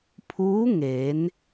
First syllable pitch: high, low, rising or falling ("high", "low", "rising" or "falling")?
rising